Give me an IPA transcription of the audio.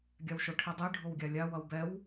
ɡʲ a w ʃ o ʈʰ i dˤ i ɖʱ o w ɡʲ a lʲ a w ʌ w b ɛ w

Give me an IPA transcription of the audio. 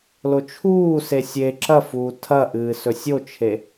l o t͡ʃʰ uː s e sʲ e ǁ ɐ f uː tʰ ɐ ʔ ɨː s ɵ sʲ o t͡ʃʰ e

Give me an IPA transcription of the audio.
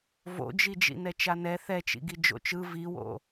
v o̰ d͡ʒ i d͡ʒ ḭ n ɛ t͡ʃ a n ɛ θ ɛ t͡ʃ ḭ ɡ i d͡ʒ o̰ t͡ʃ ɯ v i w o̰

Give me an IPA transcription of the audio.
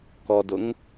k ɔ d ʊ ŋ

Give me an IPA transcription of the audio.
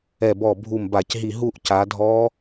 ɛ˧˩ b ɔ˧˩ bʱ u˧˩ m b a˧˩˧ c ɦ i˧˩ ɦ u˥˧ ʔ c a˨˦ dʱ ɔ˦˥

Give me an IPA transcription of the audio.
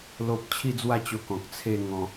l o˦ p̚ t͡ɕʰ i˥˧ d͡z w a˥˧ t͡ɕ o˧ k ɔ̃˨ k̚ t͡sʰ e˥˧ ŋ ɔ̃˧

